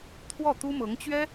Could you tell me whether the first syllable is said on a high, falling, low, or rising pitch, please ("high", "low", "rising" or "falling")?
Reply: falling